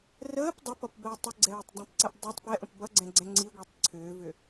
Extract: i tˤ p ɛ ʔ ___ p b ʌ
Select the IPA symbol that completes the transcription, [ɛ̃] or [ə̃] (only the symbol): ə̃